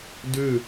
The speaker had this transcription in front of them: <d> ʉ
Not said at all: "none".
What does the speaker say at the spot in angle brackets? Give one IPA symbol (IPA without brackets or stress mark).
d